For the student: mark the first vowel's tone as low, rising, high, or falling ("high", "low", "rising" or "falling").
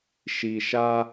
low